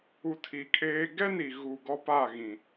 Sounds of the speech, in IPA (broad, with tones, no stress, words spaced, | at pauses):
u˨ tʰi˨kʼeː˦ ɡɛ˦ni˨ ɣu˨ ɡɔ˦pa˦˨ ɣĩ˨